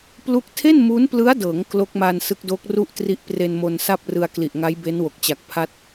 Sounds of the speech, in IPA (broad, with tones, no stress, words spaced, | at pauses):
plu˥˩k̚ tʰe˥˩nmu˦˥nplɯ˦˥a̯dɤː˩˦ŋ klo˦˥k̚maː˧n sɯ˦˥k̚doː˦˥k̚ ru˥˩ʔ tri˦˥ʔpre˧nmo˧n sa˥˩p̚rɯ˧a̯kli˨˩ʔŋa˦˥j be˦˥nwo˨˩k̚t͡ɕa˨˩k̚pʰa˦˥t̚